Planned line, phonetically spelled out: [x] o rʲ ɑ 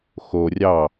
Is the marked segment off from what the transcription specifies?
no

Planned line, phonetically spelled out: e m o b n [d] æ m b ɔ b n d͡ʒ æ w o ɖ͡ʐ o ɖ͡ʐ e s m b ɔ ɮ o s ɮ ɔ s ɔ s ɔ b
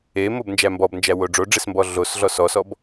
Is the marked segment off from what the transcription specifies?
yes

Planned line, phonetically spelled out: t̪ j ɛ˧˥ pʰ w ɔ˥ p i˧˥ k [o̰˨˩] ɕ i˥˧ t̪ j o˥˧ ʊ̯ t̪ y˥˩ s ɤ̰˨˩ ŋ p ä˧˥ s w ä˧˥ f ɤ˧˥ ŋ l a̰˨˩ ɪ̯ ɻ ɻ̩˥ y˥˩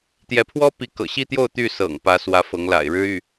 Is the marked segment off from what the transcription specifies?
yes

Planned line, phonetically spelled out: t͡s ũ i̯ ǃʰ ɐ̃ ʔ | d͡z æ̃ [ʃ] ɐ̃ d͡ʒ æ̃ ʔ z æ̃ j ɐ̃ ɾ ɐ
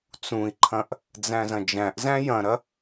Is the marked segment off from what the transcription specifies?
yes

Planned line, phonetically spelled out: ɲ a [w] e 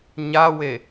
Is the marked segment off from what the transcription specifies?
no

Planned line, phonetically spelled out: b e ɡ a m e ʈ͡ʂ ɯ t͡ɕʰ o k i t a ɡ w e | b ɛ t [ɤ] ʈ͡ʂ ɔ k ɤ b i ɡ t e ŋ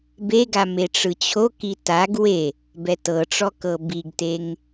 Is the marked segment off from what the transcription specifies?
no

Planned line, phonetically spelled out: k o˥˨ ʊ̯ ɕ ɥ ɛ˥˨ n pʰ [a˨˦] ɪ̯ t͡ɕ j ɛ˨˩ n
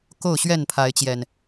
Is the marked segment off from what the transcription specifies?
no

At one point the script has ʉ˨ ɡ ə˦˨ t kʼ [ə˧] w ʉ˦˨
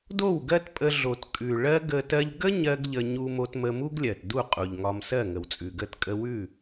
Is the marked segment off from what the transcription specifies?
no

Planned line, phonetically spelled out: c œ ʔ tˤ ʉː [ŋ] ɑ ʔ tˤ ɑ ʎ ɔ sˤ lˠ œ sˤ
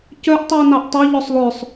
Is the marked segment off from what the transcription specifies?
yes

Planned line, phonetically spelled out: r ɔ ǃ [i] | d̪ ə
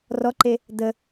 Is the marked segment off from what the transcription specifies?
yes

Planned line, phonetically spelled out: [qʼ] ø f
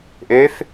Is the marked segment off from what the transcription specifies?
yes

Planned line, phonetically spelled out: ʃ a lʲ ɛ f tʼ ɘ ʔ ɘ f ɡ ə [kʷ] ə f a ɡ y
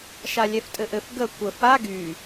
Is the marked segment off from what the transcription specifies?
no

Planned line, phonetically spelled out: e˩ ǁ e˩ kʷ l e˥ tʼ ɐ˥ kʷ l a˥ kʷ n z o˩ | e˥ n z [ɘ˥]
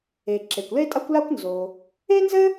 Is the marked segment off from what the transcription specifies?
no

